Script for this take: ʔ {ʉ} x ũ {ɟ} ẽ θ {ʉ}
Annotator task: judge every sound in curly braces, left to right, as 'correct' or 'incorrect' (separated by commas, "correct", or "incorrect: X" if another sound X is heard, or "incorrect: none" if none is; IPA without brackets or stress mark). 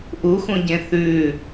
incorrect: u, correct, correct